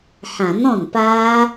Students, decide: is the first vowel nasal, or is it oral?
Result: nasal